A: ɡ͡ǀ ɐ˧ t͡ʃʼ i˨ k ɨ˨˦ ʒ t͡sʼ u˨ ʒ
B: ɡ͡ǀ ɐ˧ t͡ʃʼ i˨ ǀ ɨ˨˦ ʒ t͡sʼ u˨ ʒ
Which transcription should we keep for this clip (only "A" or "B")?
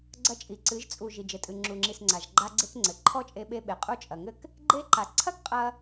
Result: B